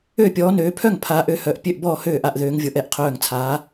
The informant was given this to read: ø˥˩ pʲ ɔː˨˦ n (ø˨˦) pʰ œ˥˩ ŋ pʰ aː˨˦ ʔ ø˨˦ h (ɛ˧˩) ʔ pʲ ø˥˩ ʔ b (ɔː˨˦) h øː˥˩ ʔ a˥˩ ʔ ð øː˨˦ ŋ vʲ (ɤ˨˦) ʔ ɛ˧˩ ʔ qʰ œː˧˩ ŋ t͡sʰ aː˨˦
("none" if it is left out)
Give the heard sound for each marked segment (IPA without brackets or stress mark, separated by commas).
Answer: øː˨˦, œ˧˩, ɔː˥˩, ɤ˨˦